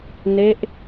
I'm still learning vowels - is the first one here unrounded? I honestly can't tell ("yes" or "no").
yes